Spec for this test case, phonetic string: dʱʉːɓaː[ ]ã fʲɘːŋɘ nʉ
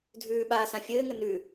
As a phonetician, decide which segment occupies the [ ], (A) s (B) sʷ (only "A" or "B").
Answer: A